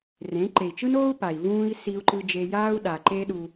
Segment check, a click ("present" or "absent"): present